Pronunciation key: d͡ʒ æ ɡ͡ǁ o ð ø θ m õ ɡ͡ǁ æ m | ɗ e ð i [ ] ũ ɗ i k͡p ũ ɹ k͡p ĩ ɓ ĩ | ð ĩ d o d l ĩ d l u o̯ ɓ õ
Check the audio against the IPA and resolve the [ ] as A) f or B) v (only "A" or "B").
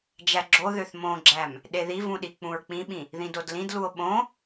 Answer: B